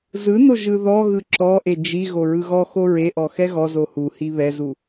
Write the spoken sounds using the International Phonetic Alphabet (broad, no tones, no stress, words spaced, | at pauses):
zɯno ʒɯðɔɣɯ ǁɔʔe d͡ʒi ɣoɹɯɣɔxo ɹeʔɔ xɛɣɔzo huhi βɛzu